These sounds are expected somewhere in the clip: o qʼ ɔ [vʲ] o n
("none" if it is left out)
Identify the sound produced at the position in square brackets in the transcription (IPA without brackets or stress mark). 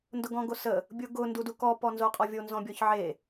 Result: vʲ